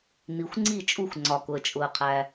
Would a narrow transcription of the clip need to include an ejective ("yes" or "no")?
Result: yes